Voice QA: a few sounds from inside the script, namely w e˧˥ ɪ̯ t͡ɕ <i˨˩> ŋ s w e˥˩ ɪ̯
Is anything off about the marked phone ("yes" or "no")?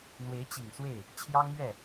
no